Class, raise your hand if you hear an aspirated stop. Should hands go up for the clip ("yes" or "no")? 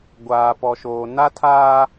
yes